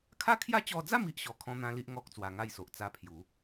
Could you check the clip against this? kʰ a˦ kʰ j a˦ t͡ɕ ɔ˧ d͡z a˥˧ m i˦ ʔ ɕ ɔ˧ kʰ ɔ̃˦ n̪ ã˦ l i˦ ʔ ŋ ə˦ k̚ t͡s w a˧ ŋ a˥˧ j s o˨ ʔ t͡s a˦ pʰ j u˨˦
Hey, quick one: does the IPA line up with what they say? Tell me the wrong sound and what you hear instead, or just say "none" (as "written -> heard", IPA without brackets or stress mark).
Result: ə˦ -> ɔ˦